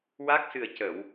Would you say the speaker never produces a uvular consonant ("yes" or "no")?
yes